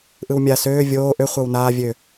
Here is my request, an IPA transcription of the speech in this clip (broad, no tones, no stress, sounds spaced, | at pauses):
ʔ ɯ w mʲ a s øː vʲ oː ʔ ø χʷ ɤ w n aː vʲ ø